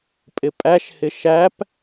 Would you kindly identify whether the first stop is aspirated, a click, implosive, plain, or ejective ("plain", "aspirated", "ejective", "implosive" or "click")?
ejective